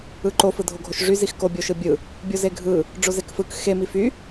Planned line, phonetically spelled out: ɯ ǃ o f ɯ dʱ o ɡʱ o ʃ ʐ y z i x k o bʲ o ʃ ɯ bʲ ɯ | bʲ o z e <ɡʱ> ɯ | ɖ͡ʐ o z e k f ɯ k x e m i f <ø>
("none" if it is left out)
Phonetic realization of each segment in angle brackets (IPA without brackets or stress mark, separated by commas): ɡʱ, y